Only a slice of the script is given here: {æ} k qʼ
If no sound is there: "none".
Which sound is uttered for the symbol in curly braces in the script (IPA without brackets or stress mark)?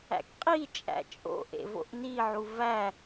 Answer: æ̰